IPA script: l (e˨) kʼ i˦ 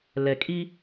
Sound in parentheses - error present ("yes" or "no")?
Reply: yes